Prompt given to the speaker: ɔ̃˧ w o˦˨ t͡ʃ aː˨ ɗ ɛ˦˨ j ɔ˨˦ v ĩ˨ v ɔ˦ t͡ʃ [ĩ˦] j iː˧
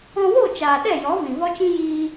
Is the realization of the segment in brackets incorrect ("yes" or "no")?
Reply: no